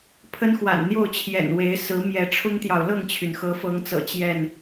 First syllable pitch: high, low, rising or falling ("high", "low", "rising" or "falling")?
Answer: high